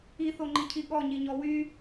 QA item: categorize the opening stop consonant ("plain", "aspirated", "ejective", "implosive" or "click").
click